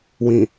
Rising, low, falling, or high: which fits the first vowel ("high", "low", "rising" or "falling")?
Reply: low